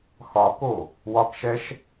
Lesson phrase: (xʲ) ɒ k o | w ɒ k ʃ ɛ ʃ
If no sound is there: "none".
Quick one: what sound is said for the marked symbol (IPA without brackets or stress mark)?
x